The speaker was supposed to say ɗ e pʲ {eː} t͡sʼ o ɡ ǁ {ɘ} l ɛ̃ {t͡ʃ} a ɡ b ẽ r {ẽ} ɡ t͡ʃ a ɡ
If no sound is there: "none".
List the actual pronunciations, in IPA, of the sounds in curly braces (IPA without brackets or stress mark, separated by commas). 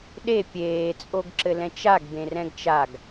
eː, ɘ, t͡ʃ, ɛ̃